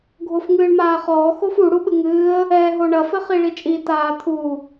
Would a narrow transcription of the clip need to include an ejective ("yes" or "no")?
yes